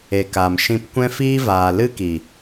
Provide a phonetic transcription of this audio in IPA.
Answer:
e˨ k a˨ m ʃ ĩ˧ p kʷ ɛ̃˦ f iː˦ v aː˨ l ɨ˦ k i˨

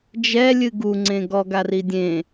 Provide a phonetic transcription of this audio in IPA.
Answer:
d͡ʒ ɛ lʲ ɨ ɡ u ŋ͡ǀ ẽ ɡ ɔ ɡ a r i dʲ ẽ

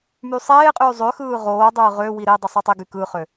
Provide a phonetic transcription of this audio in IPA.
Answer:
m y sˤ eː qʼ yː zˤ ø x ɯː ʁ oː dˤ ɯː ʁ ø w i ɾ e dˤ i sˤ o tˤ i ɡ y k ɯ χ ø

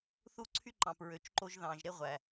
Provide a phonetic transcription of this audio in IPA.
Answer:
θ u˦ ǀʰ y˦ ǃ ɑ̃˨ p ɹ ø˨ t͡ʃ ǃ o˦ ʒ ð ɑ̃˨ ʒ ɾ e˦ ʁʷ æ˨

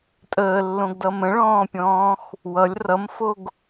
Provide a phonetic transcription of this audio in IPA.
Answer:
tʼ əː lː õ ɡ d ʌ m ə̃ ɭ ɔ̃ː pʲ ɔ̃ː x | w ʌ lʲ r ʌ m f o ɡ

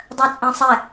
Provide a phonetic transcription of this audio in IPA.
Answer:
dˤ œ t͡sʼ ẽ sˤ ɛ

